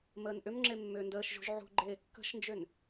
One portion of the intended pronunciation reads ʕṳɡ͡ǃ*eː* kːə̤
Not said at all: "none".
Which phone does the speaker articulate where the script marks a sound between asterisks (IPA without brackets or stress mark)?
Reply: eː